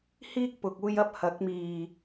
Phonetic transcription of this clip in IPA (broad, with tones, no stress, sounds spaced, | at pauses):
h iː˥ k̚ p ʊ˨ k̚ uː˧ j ɐ˥ p̚ h ɐ˨˥ k̚ m iː˨˩